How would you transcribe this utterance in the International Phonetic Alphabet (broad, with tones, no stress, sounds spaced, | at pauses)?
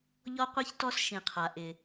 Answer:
ʎ ɔ˦ qʷ i˦ ç t ɔ˦ s ʃ ĩ˨ qʰ a˨ ʔ ɪ˨